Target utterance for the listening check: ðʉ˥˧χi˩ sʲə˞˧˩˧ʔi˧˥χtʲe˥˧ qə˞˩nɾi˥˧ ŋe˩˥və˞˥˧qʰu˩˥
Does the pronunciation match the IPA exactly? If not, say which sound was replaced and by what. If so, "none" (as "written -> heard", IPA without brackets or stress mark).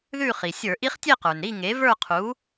none